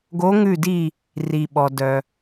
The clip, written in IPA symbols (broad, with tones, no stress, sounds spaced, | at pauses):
ɡ o˧˥ ŋ ʉ˦˨ d i˦˨ | r i˩ ɓ ɔ˩ d œ˩